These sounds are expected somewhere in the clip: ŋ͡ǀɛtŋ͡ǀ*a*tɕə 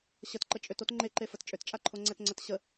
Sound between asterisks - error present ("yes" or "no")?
yes